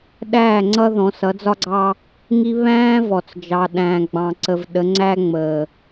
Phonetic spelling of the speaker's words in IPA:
ɗæː˦˨ŋ͡ǀʌ˦ ðɔ̃˨˦sʌ˨˦d͡zɒ˦ɡ͡ǀɑ˦ | ŋi˦ βæ̃ː˦vɔ˨t͡sd͡ʒɑ˨ ɗæ̃ː˨ɡ͡bɑ̃˨ǀə˨v ɗə˨˦ŋ͡ǀæː˦ŋ͡məː˨

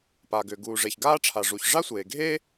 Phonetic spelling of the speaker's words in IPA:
paː˩ɡʏː˩ ɡuː˩ʐe˩çɡaː˥ʈ͡ʂʰa˩ ʐu˩ç ʐa˥sʷeː˩ɡʱeː˥

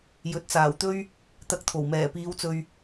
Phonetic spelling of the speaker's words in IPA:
jɵ˨t̚t͡saː˨˩wt̪ɵ˥ɥ | t̪ɐ˧k̚t̪ʰo˨˩w mɛː˨˩piː˨˧wt͡sɵ˨ɥ

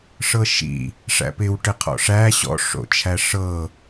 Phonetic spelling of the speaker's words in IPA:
ʂɤʃḭ | ʂæ̰pɪw ʈɪqʰɔ̰ʂæ ɕɔ̰ ʂo̰t͡ʃʰæʂɤ

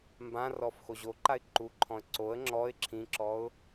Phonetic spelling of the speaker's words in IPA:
mbãrɔf xoʑoǃaɪ̯ ǃuǃʰɔ̃ə̯ ǀoə̯ ŋ͡ǁɔɪ̯ ǁʰĩǁɔʊ̯

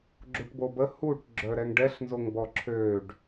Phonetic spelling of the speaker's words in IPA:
ɡ͡ǁuʈbobə huʈ ɡ͡ǁœɾɛŋɖɛɬ nzoŋbɔǁʰøɖ

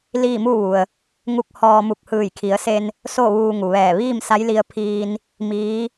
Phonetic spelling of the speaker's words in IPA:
liː˥˨mu˥˨ʋu˩ə̯ | ŋu˧˥k̚hɔː˧mu˧˩k̚ hɯː˧˩jkʰi˩˧ə̯se˧n | so˥˨ʋuː˧ŋu˩ʋɛː˧˩ ʋiː˥˨msa˧˥jli˧ə̯pʰiː˧n | miː˧˥

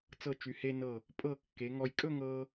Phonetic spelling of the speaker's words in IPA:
t͡sɤ˧˩t͡ʃy˩˧he˧nɤ˧˩ | pʼɤ˧˩ kːe˩˧ŋɔ˧j kʼɵ˥˧ŋɤ˧

